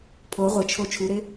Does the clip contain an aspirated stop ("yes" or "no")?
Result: yes